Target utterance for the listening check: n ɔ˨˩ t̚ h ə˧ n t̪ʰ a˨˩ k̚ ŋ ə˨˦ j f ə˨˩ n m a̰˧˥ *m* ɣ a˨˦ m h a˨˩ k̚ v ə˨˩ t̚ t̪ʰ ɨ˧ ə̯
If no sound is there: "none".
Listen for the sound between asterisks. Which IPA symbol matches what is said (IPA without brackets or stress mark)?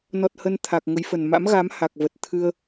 m